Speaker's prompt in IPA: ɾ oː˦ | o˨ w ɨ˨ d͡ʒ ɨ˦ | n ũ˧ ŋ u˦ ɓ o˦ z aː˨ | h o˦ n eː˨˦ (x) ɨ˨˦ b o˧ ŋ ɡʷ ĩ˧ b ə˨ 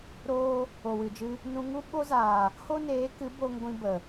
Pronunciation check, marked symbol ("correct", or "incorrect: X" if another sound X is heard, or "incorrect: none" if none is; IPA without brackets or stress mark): incorrect: k